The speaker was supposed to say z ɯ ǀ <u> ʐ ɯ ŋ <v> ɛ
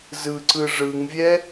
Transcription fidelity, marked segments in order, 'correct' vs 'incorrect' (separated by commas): incorrect, incorrect